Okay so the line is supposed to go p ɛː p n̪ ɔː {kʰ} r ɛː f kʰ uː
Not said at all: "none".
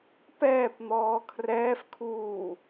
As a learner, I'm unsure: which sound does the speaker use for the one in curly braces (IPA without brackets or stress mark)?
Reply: kʰ